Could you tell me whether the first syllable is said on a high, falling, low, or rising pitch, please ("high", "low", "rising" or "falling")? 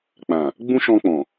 low